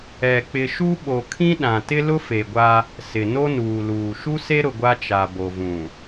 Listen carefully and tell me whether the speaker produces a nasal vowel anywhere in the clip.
yes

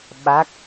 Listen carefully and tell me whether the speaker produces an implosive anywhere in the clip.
yes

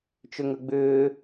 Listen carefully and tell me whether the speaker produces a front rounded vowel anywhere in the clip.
yes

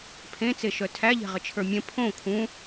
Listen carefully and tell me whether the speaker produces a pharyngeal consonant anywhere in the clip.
no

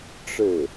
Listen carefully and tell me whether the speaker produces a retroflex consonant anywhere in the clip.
yes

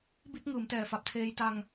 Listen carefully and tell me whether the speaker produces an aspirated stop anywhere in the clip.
yes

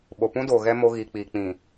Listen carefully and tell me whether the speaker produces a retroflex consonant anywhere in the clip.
no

